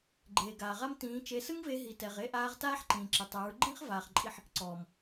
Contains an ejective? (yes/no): yes